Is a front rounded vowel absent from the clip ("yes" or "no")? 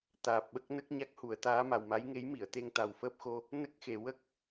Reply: yes